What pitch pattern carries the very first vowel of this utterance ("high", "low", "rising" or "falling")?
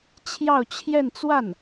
falling